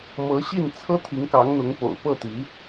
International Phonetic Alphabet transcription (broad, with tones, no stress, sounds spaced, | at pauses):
m ɤ˧˥ ɕ i˥˩ n t͡sʰ ɤ˥ t̪ʰ i˧˥ ŋ k ɑ˧˥ ŋ n̪ ʊ˧˥ ŋ p o̰˨˩ ʊ̯ p ɤ˥˩ t̪ i˧˥